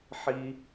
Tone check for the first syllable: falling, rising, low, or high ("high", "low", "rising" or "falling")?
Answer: high